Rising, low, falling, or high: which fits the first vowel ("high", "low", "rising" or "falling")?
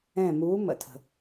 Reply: falling